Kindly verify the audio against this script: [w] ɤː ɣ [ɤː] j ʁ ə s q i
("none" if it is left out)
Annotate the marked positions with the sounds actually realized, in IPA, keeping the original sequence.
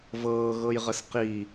v, ɤ

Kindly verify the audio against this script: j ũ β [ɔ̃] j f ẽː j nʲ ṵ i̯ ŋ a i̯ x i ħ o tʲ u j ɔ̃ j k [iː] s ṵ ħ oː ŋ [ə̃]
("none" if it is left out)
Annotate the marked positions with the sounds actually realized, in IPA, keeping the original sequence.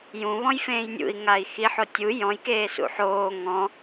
ɔ̃, eː, ɔ̃

